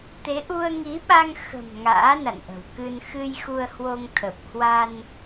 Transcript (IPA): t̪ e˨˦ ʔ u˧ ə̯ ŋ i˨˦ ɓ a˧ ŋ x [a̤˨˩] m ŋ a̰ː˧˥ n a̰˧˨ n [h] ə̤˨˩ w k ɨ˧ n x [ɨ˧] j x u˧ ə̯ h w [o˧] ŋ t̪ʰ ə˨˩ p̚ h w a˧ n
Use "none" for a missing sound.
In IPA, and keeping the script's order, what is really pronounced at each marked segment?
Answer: ə̤˨˩, ʔ, ɨ˧, o˧

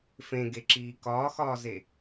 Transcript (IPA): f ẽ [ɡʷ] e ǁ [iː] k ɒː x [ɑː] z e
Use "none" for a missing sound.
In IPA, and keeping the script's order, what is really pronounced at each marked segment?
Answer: ɡ, iː, ɒː

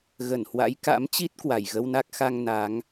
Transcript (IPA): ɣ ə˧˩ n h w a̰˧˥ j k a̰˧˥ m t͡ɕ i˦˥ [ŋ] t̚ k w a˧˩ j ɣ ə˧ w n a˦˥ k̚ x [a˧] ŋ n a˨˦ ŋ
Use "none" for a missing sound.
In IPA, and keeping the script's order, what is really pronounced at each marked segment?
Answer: none, a˧

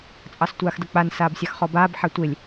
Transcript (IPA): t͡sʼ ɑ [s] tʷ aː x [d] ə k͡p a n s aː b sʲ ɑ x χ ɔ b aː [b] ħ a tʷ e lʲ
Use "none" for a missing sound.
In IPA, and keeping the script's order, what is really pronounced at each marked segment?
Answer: s, d, b

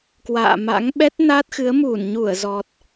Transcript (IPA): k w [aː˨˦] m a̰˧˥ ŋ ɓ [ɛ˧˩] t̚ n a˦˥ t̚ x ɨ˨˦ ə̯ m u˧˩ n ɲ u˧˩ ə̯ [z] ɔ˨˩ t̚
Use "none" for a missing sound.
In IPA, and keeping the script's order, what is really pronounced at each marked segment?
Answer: a̰ː˧˨, ɛ˦˥, z

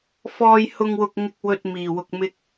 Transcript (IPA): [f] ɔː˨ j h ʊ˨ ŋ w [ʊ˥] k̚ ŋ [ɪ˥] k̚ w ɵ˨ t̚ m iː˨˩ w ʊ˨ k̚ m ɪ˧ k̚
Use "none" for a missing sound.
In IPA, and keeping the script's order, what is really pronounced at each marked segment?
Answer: f, ʊ˨, ɪ˨

